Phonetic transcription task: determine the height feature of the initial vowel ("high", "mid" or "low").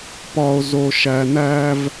low